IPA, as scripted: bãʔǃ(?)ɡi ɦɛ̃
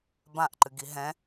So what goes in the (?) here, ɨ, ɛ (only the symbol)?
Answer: ɨ